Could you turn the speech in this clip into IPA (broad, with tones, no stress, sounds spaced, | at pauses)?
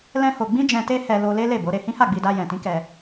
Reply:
l ɛ̃˦ h o˧ ɡ͡b ĩ˦ d͡ʒ ɛ̃˧ t e˦ h ɛ˧ l o˧ l e˦ l e˦˨ b o˨˦ ɾ e˧ h ĩ˦ h a˦˨ ɡ͡b i˧ d a˧ j ɛ̃˨ t ĩ˨˦ k ɛ˧